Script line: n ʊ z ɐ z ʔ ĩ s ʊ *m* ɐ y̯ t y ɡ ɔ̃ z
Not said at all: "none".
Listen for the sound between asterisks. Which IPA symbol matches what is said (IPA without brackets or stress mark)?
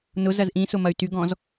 m